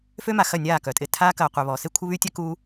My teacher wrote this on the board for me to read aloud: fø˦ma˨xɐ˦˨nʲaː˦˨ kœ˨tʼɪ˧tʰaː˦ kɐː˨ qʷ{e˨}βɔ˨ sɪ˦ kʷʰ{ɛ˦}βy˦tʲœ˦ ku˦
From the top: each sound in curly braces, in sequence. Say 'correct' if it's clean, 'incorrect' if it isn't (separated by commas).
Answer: correct, incorrect